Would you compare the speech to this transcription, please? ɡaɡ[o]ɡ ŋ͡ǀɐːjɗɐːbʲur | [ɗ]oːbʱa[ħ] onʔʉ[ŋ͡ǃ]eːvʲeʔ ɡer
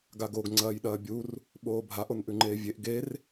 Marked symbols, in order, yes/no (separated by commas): yes, no, no, yes